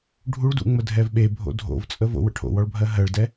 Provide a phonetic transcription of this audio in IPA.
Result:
ɖʱ u ɭ d ṵ ŋ͡m ə dʱ ɛ v ɓ e bʱ o̰ dʱ o̰ v t͡sʼ ə v o̰ w ə̰ ʈʰ o̰ w ɔ ɭ bʱ ɜ ɦ ɜ ɭ d ɛ

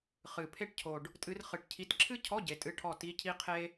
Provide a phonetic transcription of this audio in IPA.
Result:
χ ɨ˨˩ pʰ e˥˨ ʈ cʰ o˨˩ ɖ | tʼ ɨ˨˦ r χ ɨ˨˩ ʈ cʰ i˨˦ t ǁʰ ɨ˥ cʰ ɔ˧˥˧ ɟ e˨˦ tʼ ɨ˧˥˧ ʈʰ ɔ˥˨ t i˧˥˧ cʰ i˥ qʰ e˥

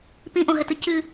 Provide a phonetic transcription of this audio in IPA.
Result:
p ĩ ʔ õ ɦ ɘ t ɨ c ɨ

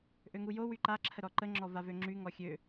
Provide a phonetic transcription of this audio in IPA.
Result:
ʔ ø ŋ u j o w y ǃ a ǁʰ ə ɾ ɔ ǃ ə ŋ͡ǁ ɔ v a v ø ŋ͡ǁ y ŋ ɔ xʲ ø

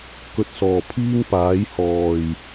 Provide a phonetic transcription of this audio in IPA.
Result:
k ɵ˨ t̚ s ɔː˨˩ pʰ iː˥ ŋ p aː˨˥ j h ɔː˨˩ j

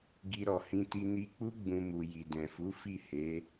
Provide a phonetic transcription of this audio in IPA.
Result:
ɡ i˧ ɾ ɔ˨ h ĩ˧ t i˧ n i˧ k͡p u˦ ɡ͡b ũ˧ m u˨ j i˨ d ɛ̃˨ f u˨˦ f i˦˨ h e˨˦

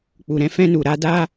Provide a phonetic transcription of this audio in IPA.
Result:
k͡p u˨ ɾ ɛ̃˧ f ɛ̃˦ n u˨ ɾ a˧ d a˦

